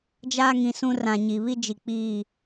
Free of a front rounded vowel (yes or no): yes